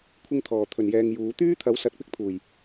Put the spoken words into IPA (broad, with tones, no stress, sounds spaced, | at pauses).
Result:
kʷʰ ɪ˧ ŋ t̪ʰ ɔː˨˩ t̪ʰ ɵ˨˩ n j ɛː˨ ŋ j uː˨˧ t̪ yː˥ t̪ʰ ɐ˨˥ w s ɐ˨˥ t̚ p ɪ˨˥ k̚ t̪ʰ uː˨˩ j